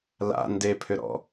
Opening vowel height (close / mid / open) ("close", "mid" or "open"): open